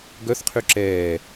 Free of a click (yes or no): no